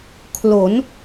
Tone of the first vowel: rising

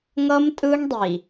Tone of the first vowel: high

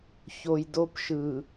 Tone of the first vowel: low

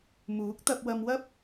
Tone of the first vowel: rising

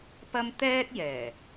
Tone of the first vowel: high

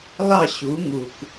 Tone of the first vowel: falling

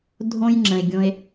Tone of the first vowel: high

